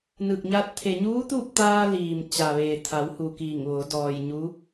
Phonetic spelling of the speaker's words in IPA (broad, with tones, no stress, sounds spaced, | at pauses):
n ɯː˧˩ k̚ ɲ aː˧ t̚ t̪ʰ e˩ ɲ uː˧˥ t̪ uː˥˨ p̚ t̪ aː˧ l iː˩ m t͡ɕ a˩ ʋ eː˩ t̪ʰ a˩˧ w h u˩ k iː˧˩ ŋ ʋ o˩˧ d ɔː˩ j ɲ u˧˥